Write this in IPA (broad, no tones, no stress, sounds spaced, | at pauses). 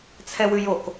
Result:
t͡sʰ ɛ w ʉ j o k